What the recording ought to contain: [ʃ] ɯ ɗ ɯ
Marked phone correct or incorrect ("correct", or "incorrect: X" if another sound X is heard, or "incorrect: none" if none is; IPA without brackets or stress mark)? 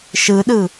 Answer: correct